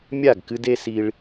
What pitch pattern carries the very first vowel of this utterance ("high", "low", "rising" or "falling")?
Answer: falling